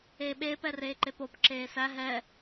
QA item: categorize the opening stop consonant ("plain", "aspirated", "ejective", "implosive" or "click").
implosive